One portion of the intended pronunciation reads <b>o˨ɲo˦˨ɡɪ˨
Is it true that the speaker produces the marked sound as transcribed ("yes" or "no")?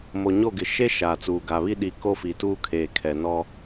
no